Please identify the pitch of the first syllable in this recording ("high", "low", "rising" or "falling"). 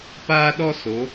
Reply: high